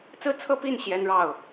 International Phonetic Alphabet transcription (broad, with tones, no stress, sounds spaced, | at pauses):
t͡s ɹ̩˥˧ t͡sʰ ɤ˥˧ p i˥˩ n ɕ j ɛ˥ n ɻ ɑ˥˩ ʊ̯